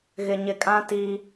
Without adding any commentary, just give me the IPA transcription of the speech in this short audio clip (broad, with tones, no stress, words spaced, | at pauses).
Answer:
ɣɪ˨ɲɪ˨kʼã˦ ti˦